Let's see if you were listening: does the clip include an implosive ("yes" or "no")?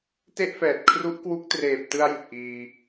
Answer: no